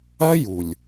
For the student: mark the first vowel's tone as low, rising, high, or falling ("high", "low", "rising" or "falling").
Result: high